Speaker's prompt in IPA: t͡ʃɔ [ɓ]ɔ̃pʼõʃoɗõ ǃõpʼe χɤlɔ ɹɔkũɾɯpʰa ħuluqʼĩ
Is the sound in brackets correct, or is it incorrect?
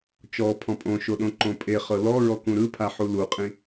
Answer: incorrect